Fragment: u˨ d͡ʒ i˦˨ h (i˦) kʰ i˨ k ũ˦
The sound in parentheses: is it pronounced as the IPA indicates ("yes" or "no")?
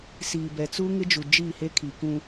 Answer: no